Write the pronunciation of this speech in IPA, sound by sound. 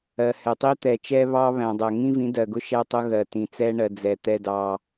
ɜ˨ h ɛ˨ tˤ i˦ t̪ ɛ˨ t͡ʃ ɛ˦ β ɑ˦ β æ̃˨ dˤ ɜ˨ ŋ ĩ˦ v ĩ˨˦ d ɜ˨ ɡ ʊ˦ ʃ æ˦ tˤ ʊ˦ ɣ ɜ˨ t ĩ˨ t͡s ɛ˦ ɳ ɜ˨ d͡z ɛ˨ t̪ ɛ˦ d ɑ˦

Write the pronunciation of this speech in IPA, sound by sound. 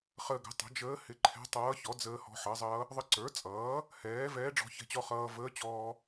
χ əː˧ ɡ ə̤˩˥ tˤ ə̤˩˥ d͡ʒ əː˧˥ h ɪ˧ ǃʰ ɛ̤˧˥ tˤ ʌː˧˥ ç ɔ˩˥ d͡z əː˧ h ɔ̤˧ ħ ʌ˩˥ zˤ ʌː˧˥ | ðˤ ə˧˥ ǀ ə˞˩˥ t͡sʼ ʌː˩˥ | h ɛː˩˥ v ɛː˧˥ ɖ͡ʐ ɔ̤˧ ç ɛ̤˧ t͡ɕ ɔ˧ χ ʌː˧ v əː˧˥ t͡ɕ ɔː˧

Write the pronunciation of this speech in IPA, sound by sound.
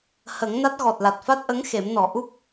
h ə˨˩˦ ŋ n a˦˥ t̚ ɣ ɔ˨˩ t̚ l a˨˩ t̚ f a˦˥ t̚ ʔ ə˧˥ ŋ x e˨˩˦ m n ɔ˨˩˦ ʔ u˦˥ p̚

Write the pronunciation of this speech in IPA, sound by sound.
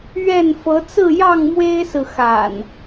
ɥ ɛ˥˨ n f ɤ˨˦ t͡s ɹ̩˥˨ j ɑ˥˨ ŋ m w e˦ ɪ̯ s ɹ̩˨ x a̰˨˩ n

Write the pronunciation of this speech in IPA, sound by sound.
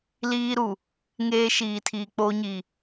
l iː˦ ɾ u˨ | ŋ eː˦ ʃ iː˨ tʰ iː˨ k͡p o˦ ɲ i˨

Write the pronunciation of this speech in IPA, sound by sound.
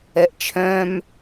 ɛ ʔ t͡ʃʰ œ̃ m

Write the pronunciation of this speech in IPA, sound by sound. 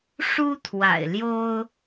ʂ u˥ t̪ʰ w a̰˨˩ ɪ̯ l j o˥ ʊ̯

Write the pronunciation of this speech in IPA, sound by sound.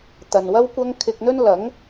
t̪ ɐ˨ n w ɐ˥ w kʷ ɐ˥ ŋ kʰ ɪ˧ k̚ n̪ ɵ˥ n l ɐ˨˥ ŋ

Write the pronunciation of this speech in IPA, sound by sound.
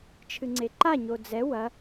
t͡ʃʰ ɨ ŋ͡ǀ e ǃ a ɲ o d͡z ɛ w ɐ

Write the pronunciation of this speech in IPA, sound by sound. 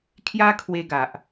kʰ j a˦ kʰ w e˧ ɡ a˨ ʔ

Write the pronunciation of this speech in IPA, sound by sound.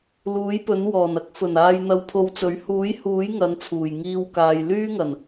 l uː˨˥ j p ɵ˨˥ n w ɔː˨˩ n ɐ˨˥ k̚ f ɵ˨˩ n aː˧ j n̪ ɐ˧ w pʰ o˧ w t͡s ɵ˨˥ ɥ h uː˨˥ j h uː˨˥ j ŋ ɐ˨˥ n t͡sʰ uː˨˩ j ŋ iː˨ w k aː˨ j l yː˥ ŋ ɐ˨˩ n

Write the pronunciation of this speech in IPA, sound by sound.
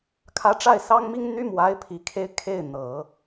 kʰ ä˧˥ ʈ͡ʂ a˥˩ ɪ̯ s ɑ˥ ŋ m i˥ ŋ n̪ y˥ m w a˧˥ ɪ̯ pʰ i˨˩ kʰ e˥ ɪ̯ kʰ e˥˩ ɪ̯ n̪ ɤ˨˩˦

